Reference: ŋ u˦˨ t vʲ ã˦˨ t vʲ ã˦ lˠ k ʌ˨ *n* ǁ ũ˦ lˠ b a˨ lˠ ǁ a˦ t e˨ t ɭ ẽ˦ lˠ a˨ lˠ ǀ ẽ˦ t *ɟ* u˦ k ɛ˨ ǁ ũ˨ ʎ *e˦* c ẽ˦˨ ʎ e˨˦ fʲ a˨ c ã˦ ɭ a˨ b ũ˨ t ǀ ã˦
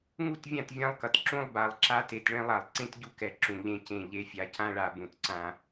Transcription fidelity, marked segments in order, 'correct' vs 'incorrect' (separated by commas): incorrect, correct, incorrect